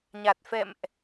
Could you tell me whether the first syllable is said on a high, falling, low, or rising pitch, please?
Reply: low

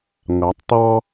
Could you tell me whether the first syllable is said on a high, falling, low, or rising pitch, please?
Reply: rising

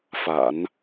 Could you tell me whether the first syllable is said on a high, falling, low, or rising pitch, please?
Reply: low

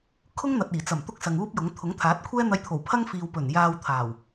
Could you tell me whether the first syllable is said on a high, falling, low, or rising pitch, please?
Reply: high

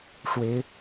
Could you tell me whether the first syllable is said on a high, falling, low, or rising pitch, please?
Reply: rising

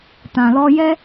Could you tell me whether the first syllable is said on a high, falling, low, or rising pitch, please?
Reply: low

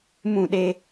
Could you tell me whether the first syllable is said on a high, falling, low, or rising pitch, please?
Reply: falling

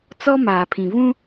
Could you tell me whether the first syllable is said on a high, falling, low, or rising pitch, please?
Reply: high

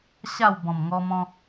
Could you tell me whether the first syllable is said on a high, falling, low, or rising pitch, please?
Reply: falling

